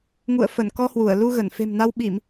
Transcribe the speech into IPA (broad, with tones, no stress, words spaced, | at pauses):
ŋṵ˧˨ə̯ fə˧˩nkɔ˧hwu˧˩ə̯ lu˧ɣə˧˩n fe̤˨˩mna˧wɓi˧˩˨m